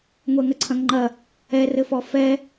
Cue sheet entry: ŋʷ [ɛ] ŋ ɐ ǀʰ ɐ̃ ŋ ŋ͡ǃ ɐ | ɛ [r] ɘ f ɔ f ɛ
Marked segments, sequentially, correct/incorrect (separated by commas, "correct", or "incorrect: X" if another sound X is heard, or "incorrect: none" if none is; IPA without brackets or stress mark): correct, correct